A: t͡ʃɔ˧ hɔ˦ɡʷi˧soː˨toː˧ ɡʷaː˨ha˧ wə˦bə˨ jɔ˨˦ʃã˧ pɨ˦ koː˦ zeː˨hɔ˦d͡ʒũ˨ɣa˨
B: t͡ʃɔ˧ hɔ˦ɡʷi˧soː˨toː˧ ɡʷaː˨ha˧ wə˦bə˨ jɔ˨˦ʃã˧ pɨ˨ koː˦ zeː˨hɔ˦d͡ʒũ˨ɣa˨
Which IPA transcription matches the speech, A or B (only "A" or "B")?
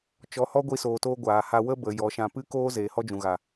A